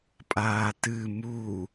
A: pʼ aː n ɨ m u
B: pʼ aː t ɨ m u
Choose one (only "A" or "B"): B